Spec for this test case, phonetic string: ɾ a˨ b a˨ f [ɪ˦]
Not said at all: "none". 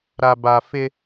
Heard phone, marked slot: ɪ˦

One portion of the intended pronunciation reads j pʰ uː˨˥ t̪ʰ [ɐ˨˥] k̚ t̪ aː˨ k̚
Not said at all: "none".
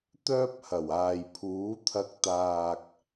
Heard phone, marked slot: ɐ˧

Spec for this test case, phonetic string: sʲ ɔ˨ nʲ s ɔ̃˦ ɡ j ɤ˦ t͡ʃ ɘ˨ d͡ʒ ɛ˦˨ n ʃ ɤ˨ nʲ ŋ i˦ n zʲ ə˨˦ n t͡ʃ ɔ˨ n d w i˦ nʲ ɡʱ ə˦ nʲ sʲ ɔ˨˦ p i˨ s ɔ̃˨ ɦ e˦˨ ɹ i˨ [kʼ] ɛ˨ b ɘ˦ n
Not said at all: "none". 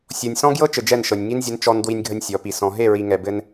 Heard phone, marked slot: ŋ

